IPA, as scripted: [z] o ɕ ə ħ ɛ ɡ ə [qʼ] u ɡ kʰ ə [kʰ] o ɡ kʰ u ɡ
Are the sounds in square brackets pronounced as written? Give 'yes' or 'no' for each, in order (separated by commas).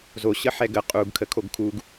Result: yes, yes, yes